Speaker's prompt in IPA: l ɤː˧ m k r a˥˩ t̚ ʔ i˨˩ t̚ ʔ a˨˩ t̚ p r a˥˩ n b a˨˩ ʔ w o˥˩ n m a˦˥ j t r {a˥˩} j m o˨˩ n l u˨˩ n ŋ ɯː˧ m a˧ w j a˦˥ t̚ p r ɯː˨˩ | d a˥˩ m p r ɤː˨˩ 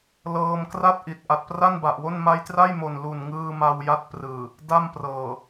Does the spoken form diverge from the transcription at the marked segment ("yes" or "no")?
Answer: no